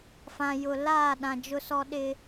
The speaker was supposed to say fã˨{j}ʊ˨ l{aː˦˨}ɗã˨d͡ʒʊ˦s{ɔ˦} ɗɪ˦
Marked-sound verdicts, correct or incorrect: correct, correct, correct

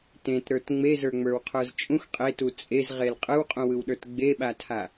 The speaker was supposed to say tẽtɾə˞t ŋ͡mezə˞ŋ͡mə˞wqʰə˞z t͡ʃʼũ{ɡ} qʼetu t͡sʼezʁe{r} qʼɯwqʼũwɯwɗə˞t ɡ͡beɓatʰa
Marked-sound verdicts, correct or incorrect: incorrect: x, incorrect: l

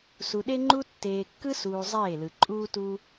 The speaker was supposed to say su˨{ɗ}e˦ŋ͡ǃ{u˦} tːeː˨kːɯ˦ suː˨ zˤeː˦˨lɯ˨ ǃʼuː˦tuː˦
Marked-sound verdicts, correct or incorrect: correct, correct

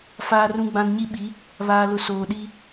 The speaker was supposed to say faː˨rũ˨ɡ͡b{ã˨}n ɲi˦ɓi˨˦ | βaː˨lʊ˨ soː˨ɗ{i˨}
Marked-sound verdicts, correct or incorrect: correct, incorrect: i˦

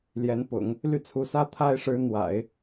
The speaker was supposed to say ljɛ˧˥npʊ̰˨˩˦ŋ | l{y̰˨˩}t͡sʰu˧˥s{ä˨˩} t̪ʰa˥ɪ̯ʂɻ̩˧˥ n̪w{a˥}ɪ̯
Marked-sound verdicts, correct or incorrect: incorrect: y˥˩, incorrect: ä˥, incorrect: a̰˨˩˦

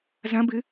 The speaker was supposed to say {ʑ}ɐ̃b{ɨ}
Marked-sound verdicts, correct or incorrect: incorrect: z, correct

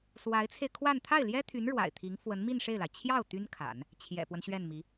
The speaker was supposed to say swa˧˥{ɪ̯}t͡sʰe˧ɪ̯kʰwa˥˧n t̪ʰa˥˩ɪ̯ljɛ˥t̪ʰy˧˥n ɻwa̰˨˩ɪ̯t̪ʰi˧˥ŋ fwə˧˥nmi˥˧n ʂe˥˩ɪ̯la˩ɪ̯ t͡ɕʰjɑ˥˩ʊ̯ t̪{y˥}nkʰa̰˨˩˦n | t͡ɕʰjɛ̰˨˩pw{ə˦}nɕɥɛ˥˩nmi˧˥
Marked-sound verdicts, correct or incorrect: correct, correct, correct

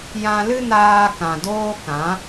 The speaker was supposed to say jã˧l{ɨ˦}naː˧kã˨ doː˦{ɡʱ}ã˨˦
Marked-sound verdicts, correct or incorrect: correct, incorrect: k

